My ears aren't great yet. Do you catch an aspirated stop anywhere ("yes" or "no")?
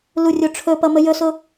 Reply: yes